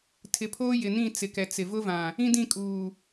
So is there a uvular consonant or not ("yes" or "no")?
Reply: no